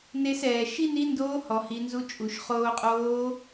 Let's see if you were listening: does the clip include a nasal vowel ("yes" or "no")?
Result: no